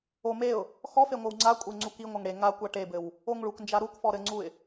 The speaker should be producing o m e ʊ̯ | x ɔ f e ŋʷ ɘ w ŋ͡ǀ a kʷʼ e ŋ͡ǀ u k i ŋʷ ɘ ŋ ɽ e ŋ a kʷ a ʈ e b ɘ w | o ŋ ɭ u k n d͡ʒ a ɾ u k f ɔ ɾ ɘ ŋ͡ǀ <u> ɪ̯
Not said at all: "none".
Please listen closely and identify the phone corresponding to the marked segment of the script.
u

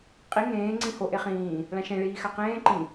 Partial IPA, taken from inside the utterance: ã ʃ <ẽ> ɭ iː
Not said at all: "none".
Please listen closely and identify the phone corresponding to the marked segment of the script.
ẽ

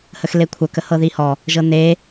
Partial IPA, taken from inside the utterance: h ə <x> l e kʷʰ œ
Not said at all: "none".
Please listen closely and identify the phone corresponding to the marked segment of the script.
x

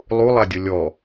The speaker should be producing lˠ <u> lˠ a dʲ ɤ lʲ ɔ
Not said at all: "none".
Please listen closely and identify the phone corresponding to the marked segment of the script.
u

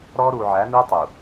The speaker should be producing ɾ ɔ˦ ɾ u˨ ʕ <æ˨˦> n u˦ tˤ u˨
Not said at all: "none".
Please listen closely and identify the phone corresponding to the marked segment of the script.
æ˨˦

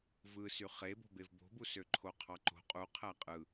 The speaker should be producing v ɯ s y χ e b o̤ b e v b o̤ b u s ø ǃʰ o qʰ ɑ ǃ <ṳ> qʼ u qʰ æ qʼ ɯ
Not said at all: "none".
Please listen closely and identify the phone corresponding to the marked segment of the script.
o̤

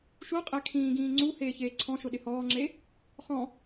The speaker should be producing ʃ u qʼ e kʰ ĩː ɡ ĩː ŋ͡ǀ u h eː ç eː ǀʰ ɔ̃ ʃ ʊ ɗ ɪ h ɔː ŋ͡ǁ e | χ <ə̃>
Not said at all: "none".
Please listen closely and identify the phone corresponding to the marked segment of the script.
ɔ̃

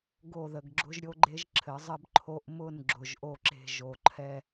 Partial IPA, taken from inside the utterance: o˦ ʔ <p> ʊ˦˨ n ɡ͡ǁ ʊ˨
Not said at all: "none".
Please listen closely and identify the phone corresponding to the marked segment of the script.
m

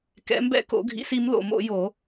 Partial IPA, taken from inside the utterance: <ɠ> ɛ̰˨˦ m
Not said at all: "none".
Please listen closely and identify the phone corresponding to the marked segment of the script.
k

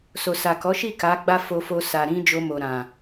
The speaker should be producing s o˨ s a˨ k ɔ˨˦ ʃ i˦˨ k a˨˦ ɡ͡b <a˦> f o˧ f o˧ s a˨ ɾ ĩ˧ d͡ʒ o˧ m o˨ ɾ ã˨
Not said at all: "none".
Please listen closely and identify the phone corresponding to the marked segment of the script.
a˦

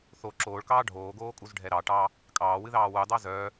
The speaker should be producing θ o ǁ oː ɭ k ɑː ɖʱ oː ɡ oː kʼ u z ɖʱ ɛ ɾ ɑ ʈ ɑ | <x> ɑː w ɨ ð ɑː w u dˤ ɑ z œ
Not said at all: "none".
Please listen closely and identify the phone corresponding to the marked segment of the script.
kʼ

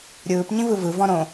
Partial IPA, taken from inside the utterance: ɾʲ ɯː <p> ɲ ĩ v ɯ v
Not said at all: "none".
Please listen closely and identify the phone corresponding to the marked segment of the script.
p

